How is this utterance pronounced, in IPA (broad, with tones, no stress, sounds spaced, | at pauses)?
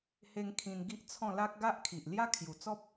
h e˧ ŋ kʰ ĩ˧ n ɡ i˦ ʔ t͡sʰ ɔ̃˥˧ l a˦ k̚ ɡ a˦ ʔ kʰ i˨ ʔ l j a˦ kʰ j u˨˩ t͡s ɔ˦ p̚